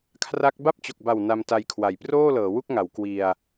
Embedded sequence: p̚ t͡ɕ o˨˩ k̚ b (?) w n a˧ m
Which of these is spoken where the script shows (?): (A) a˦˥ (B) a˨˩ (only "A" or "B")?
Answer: B